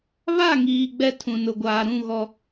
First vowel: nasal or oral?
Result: oral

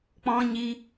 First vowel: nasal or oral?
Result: nasal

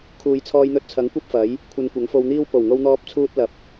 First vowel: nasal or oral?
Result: oral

